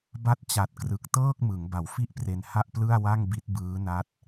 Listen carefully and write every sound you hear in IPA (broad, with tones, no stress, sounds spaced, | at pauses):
b a˦˥ t̚ t͡ɕ a˨˩ t̚ k r ɯ˨˩ k̚ t ɤː˥˩ k̚ m ɯ˩˦ ŋ b a˨˩ w f i˥˩ ʔ p r e˧ n h a˥˩ ʔ p l ɯ˥˩ a̯ w a˥˩ ŋ b i˦˥ t̚ b ɯː˦˥ n a˦˥ t̚